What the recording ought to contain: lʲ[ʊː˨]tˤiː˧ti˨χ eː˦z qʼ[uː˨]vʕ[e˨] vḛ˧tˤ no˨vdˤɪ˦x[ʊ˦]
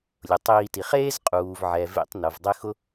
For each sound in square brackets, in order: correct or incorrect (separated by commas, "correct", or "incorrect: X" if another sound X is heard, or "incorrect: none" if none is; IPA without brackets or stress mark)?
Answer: incorrect: ʊ˨, correct, incorrect: ɛ˨, correct